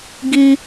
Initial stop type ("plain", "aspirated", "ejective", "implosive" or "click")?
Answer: plain